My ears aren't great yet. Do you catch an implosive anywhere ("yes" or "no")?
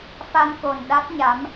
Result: yes